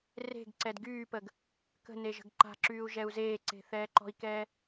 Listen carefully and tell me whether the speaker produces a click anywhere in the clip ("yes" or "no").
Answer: yes